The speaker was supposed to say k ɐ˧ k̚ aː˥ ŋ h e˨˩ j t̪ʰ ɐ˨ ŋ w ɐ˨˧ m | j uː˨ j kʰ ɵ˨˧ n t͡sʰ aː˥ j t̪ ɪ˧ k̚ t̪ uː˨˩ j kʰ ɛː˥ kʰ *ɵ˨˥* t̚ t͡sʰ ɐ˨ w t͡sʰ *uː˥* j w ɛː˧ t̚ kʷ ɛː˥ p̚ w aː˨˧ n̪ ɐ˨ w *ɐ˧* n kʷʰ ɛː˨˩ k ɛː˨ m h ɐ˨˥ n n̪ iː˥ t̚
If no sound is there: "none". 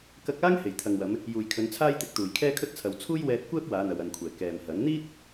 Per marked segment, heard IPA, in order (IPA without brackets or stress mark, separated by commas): ɵ˥, uː˥, ɐ˨